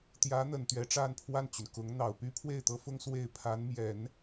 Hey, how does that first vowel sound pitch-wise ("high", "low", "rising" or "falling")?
rising